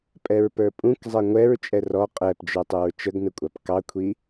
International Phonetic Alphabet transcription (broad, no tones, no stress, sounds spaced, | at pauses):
pʼ ɛ ɹ p ə˞ pʼ ũ k zˤ ɛ ŋʷ ɛ ɹ t͡ʃʼ ɛ r ɔ qʼ ɛ p d͡ʒ ə˞ tˤ u ɹ t͡ʃ ə ɡ n ə kʷʼ ɑ p k ɑ kʷʰ i